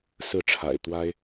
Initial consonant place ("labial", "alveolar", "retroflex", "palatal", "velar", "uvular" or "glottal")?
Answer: alveolar